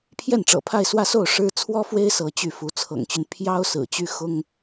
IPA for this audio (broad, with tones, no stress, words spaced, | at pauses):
pʰjɛ˥˩nʈ͡ʂɤ̰˨˩pʰa˥˧ɪ̯ swä˥˧so˥˩ʊ̯ ʂɻ̩˥ t͡sʰwɔ˥fwe˥ɪ̯ sɤ˧˥t͡ɕy˥˩fu˧˥ t͡sʰɤ̰˨˩ŋt͡ɕy˦n pʰjɑ˥ʊ̯ sɹ̩˨˩t͡ɕy˥xʊ˥ŋ